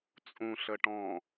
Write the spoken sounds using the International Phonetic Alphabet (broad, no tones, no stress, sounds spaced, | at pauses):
t͡sʼ ũ ɬ ə ʈ ɔ̃